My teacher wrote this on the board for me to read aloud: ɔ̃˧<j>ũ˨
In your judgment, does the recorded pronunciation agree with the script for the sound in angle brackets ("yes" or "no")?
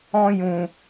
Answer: yes